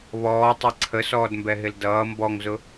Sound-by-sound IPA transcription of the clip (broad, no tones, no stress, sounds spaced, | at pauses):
β ɔː tˤ ɛ ǀʰ ə s ɔː d m b ɛ ɦ ɪ l d ʌː m b ɔ ŋ z ʊ